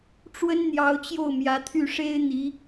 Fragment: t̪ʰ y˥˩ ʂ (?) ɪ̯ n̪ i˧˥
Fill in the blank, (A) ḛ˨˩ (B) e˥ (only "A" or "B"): B